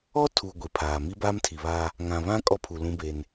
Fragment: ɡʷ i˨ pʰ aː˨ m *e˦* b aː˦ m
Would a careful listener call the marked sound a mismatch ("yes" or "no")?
yes